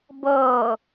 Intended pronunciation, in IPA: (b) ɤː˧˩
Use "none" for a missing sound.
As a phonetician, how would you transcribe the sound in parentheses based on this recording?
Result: b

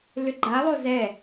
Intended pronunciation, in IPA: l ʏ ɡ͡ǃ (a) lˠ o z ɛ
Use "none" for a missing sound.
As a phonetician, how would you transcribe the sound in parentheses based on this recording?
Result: a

